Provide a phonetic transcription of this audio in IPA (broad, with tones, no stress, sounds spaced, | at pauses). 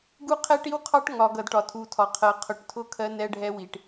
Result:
ɡ u˦ qʰ ɛ˦ ʈ i˦ w qʰ ɑ˦ ʈ ŋ ɒ˨ ɡ ʌ˨ d ʈ ɒ˨ tʰ u˨ tʰ ɒ˨ qʰ ɜ˨ qʰ ʊ˨˦ ʈ tʰ ʊ˦˨ kʰ ɜ˦ n ɛ˦ ɖʱ ɛ˦ w i˨ ʈ